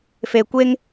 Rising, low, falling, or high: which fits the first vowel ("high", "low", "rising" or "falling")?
low